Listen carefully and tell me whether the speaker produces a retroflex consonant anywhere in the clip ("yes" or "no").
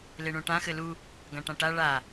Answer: yes